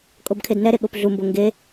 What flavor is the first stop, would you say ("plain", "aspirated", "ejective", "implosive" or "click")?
ejective